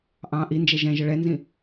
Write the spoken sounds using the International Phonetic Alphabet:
ʔ ɑ̃ ʔ i n d͡ʒ ɛ ʒ ɛ̃ ʒ ə ɭ ɛ n z ĩ

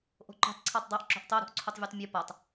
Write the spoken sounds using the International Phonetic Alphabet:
ʔ o̤ ǃ ṳ tˤ ǀʰ a tˤ dˤ i ʔ ǁ o̤ ʔ tˤ o ɾ ṳ ʔ ǀʰ u tˤ vʲ u tˤ mʲ u p a tˤ

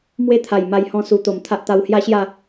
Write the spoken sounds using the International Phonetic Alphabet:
m w e˥˧ t̪ʰ a˨˩ j m a˧ j h ɔ̃˧ s u˨˩ t̪ o˨˩ m t̪ʰ a˦ ʔ t̪ a˧ w h j a˦ ɕ j a˥˧

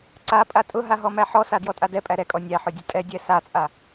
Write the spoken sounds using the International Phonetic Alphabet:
ǀ a pʼ a tʼ ʊ ɦ a ɦ ɔ m æ ħ ɔ s a d j ɔ tʼ a d ɛ pʼ æ ɾ ɛ kʼ ɔ nʲ æ ħ ʊ dʲ ʊ tʼ ɛ dʲ ɛ s a t͡sʼ a

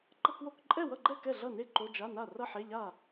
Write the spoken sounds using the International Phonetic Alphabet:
ǃ ʌ˧˥˧ k w o˧˥˧ k ǃʼ ɛ˥˩ w ʌ˥˩ ɡ͡ǃ ɛ˥˩ k ɛ˥˩ ɮ ʌ˥˩ n e˥˩ ǃ o˧˥˧ d͡ʒ a˧˥˧ n a˥˩ r ʌ˥˩ ħ e˧˥˧ ʎ a˥˩

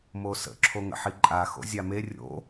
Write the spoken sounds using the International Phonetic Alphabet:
m o s ə̰ ǁʰ o ŋ ə̰ ħ i ǃʼ a x o̰ zʲ a m e rʲ o̰

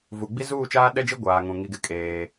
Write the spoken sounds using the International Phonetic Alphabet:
v u˨ ɡ͡b i˦ z uː˦˨ t͡ʃ aː˦ ɗ ɛ˦ d͡ʒ i˦ ɡʷ aː˨ ŋ ũ˨ ŋ i˦ ɡ ɪ˦ kʼ eː˦

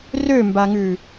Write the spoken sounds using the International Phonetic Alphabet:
r ø m b a ŋ ʉ

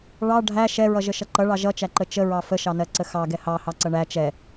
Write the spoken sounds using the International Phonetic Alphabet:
ɭ ɑ ɖʱ æ ʃ ɛ ɹ ʌ ʒ ə ʃ ʌ ǃ ʌ ɭ ɑ ʒ ʌ t͡ʃ æ ǃ ə t͡ʃ ə ɹ ɑ f ə ʃ ɑ n ɜ ǀ ə x ɑ ɡ ɛ h ɑ h ɑ ǀ ʌ ɳ æ t͡ʃ ɛ

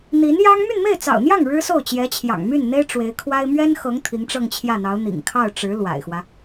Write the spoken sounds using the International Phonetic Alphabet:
n̪ i˧˥ n j ɑ˥ ŋ m y˥˧ n m e˥˩ ɪ̯ t͡s ɑ̰˨˩ ʊ̯ n̪ j ɑ˥˩ ŋ ɻ ɻ̩˥ s o˥˩ ʊ̯ t͡ɕ j ɛ˧˥ t͡ɕʰ j ɑ̰˨˩ ŋ m y˥˩ n n̪ e˥ ɪ̯ ʈ͡ʂ w e˧˥ ɪ̯ kʰ w a˥ ɪ̯ m ɥ ɛ˥ n x ɤ˧˥ ŋ t̪ʰ i˧˥ ŋ ʈ͡ʂ ɤ˥˧ ŋ t͡ɕʰ j ä˥˩ n̪ ɑ˧˥ ʊ̯ n̪ ḭ˨˩ ŋ kʰ ɑ˥˩ ʊ̯ ʈ͡ʂ ɻ̩˧˥ l w a̰˨˩ ɪ̯ x w ä˦

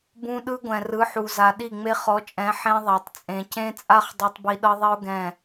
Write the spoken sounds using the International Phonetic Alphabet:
b ũ˦ ɗ ɯ˦ ɡʷ ɛ̃˨ r ɯ˨˦ ħ u˨ z a˨ ɗ i˦˨ ŋ͡m e˦ χ ɔ˨˦ t͡ʃʼ ɛ̃˨˦ ħ ẽ˦ ðˤ a˨ tˤ t͡sʼ ẽ˨ c ẽ˦ t͡sʼ a˦ χ dˤ u˦ tˤ b i˦ ɗ ɤ˦ ðˤ i˦ ʊ̯ ɡ ɛ̃˦˨

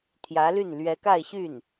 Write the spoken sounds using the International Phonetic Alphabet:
t̪ʰ j ä˧˥ l y˥˩ n l ɥ ɛ˧˥ k a˥˧ ɪ̯ ɕ y˥˩ n

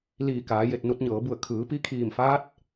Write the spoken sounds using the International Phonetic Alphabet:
l iː˧˩ k aː˩˧ j e˧˩ t̚ n u˧ t̚ ɲ ɤː˩˧ b u˧˩ ə̯ kʰ ɯː˩˧ p i˧˥ kʰ iː˧˩ m f aː˧˥ t̚

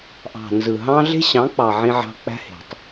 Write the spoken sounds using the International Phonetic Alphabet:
ʔ ɑ̤˨ n z ɯ˨ ɦ ɑ̃˦ ɮ e̤˦ ɕ ɑ̃˨˦ k͡p ɑ˨ ʕ ĩ˦ ʕ ɑ̤˦ k͡p æ̤˦ h e̤˨ tˤ

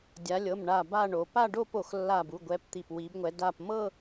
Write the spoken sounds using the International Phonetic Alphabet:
dʲ a˨˦ lʲ ɤ˩˧˩ m ɳ a˧˩ b a˥˧ ɳ o˨˦ p a˥˧ ɖ o˥˧ p o˧˩ x lː a˧˩ b u˩˧˩ ɡʷ ɛ˨˦ p t̪ i˧˩ p w i˨˦ b ŋʷ ɛ˨˦ d a˧˩ p m ɤ˥˧

